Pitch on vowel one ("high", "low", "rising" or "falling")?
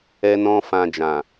high